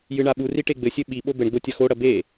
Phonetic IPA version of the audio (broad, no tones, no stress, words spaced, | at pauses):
jɨɳaɓuri ʈeɡ͡bɘsʲɘ ɓi ɓobɘɳɡ͡bo tʲɐxoɽɐ be